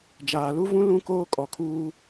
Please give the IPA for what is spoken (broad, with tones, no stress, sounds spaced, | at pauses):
d͡ʒ aː˨ l u˦ v ũ˦ l ũ˦ k oː˦ kʼ ɔ˨ kʰ uː˦